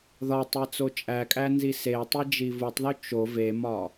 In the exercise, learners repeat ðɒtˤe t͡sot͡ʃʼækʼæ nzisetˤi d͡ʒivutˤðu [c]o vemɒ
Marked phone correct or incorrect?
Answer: incorrect